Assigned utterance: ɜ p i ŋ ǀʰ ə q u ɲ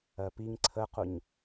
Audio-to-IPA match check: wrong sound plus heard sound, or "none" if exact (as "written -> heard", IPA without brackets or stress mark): none